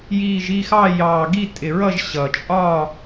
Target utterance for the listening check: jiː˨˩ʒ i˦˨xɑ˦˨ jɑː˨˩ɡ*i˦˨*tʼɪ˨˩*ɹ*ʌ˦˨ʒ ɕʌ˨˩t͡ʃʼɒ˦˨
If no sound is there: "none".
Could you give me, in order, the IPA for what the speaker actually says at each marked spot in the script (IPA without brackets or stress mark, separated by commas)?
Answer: i˦˨, ɹ